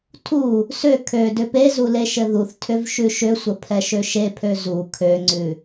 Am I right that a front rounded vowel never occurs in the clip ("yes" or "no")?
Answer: no